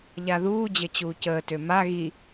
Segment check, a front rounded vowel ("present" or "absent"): present